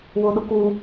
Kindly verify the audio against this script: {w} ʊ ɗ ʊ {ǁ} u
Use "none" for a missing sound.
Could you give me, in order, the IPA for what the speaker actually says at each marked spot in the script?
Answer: w, k

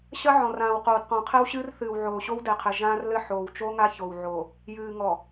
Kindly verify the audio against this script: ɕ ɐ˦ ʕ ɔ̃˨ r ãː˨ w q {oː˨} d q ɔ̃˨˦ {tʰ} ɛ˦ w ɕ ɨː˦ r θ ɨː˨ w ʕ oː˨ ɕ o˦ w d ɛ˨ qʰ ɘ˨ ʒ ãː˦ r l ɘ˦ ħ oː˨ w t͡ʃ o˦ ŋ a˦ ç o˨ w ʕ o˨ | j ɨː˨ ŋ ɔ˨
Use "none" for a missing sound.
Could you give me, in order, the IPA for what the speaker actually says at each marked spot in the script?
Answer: oː˨, qʰ

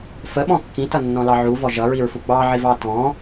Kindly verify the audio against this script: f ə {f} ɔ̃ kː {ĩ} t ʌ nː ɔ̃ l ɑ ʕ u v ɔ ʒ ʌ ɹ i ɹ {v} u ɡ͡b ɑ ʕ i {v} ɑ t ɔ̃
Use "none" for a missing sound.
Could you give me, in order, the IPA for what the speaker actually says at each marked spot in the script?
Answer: ɓ, ĩ, f, v

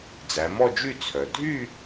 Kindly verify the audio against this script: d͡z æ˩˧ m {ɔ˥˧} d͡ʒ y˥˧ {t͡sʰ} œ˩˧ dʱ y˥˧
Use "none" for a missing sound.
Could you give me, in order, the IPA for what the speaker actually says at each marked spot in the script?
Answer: ɔ˥˧, t͡sʰ

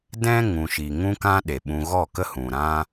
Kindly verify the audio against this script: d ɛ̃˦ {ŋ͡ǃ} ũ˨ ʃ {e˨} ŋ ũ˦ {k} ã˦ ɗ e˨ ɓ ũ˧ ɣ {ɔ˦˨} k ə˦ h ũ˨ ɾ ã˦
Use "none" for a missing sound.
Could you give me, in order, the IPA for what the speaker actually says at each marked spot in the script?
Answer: ŋ, i˨, k, ɔ˦˨

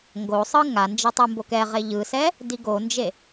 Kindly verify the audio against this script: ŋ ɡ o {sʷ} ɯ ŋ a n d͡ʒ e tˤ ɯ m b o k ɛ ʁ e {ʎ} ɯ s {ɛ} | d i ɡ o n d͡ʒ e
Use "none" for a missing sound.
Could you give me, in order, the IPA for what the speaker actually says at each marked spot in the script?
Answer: sˤ, ʎ, ɛ

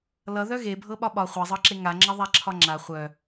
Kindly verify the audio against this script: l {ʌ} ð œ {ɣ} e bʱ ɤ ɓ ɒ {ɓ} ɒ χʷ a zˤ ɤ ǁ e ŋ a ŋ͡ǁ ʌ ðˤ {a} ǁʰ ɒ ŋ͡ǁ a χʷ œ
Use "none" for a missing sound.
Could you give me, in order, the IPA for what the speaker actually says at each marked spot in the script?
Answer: ʌ, ɣ, ɓ, a

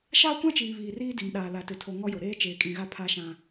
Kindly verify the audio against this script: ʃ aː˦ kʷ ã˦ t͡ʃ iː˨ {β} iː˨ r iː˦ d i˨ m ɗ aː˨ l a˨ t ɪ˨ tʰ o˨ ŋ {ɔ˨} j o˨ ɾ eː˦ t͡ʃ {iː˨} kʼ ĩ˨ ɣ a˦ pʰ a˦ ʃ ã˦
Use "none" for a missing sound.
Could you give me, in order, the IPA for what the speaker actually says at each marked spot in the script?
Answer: β, ɔ˦, eː˨

